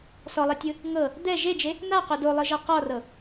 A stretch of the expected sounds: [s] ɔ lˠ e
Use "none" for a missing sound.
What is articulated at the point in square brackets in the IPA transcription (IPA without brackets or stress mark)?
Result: s